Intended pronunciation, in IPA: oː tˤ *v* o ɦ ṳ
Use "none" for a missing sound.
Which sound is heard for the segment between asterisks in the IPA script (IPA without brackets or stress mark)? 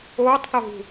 θ